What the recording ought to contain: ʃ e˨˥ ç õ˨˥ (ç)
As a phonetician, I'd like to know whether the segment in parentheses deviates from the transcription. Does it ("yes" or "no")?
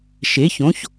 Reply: no